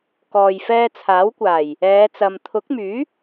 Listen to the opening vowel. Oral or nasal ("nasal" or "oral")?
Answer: oral